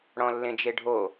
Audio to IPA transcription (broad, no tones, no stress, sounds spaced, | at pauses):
ɽ ɔ̃ lː ẽ d͡ʒ e ɖʱ o